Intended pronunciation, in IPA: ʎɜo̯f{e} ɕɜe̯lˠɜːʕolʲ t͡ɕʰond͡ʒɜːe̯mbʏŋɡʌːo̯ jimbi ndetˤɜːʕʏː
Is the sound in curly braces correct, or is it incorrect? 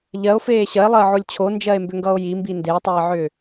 incorrect